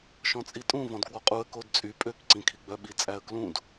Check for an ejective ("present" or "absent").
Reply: present